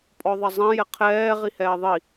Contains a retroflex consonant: no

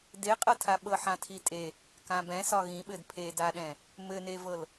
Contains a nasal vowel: yes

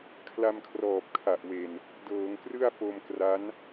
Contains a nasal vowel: no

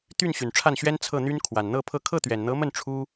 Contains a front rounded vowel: yes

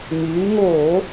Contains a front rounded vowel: yes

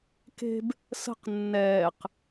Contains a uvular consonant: yes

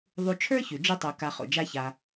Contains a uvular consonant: yes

